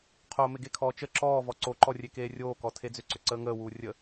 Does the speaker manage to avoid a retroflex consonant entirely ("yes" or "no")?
yes